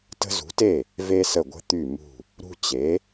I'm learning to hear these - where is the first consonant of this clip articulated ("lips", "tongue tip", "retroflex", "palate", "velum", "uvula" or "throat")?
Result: tongue tip